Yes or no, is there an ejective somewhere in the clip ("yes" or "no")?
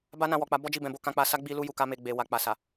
no